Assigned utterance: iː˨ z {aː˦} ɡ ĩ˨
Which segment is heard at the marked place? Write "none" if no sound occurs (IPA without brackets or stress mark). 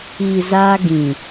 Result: aː˦